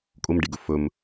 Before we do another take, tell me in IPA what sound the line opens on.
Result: kʼ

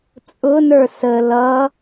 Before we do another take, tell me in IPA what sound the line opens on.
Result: t͡sʼ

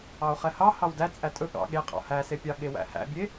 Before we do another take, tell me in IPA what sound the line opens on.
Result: ɑ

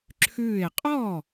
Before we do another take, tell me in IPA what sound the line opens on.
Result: ǁʰ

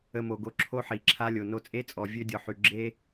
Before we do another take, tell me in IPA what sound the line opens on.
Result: ə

